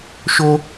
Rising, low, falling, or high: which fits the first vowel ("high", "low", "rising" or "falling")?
high